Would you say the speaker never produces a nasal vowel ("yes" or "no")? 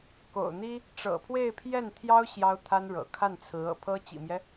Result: yes